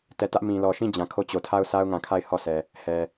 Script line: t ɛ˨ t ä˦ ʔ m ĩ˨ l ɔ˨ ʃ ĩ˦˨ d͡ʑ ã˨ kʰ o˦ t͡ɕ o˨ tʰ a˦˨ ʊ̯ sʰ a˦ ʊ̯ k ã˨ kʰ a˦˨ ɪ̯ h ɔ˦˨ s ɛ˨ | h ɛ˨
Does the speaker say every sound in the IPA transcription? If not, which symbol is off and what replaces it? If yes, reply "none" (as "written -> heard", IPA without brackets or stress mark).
k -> ŋ